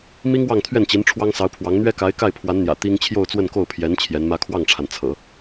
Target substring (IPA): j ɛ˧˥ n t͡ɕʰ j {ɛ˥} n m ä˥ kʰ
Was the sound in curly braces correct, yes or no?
no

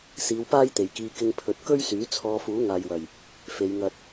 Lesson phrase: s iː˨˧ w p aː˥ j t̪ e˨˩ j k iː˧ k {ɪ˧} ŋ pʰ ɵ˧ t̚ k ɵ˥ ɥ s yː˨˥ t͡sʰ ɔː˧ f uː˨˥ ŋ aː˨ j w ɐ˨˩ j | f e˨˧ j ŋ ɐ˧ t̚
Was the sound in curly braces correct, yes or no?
yes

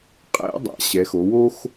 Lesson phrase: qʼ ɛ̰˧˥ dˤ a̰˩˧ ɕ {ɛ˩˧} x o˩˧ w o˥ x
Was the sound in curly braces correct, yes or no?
yes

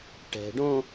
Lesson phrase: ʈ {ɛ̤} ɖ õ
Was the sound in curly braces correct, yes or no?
yes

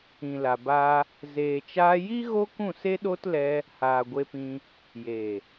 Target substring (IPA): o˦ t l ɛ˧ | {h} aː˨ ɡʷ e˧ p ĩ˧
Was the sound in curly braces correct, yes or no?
yes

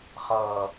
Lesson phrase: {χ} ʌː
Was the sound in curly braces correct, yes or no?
yes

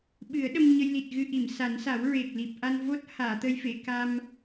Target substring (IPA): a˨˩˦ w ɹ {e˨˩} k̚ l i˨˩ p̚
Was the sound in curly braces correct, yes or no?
yes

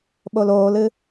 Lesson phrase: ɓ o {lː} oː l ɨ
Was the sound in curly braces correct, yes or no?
no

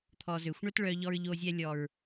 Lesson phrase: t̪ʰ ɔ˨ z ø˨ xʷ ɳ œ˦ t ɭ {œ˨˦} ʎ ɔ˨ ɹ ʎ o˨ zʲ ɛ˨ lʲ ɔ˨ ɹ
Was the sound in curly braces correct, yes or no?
no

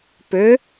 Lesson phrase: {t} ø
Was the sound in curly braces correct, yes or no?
no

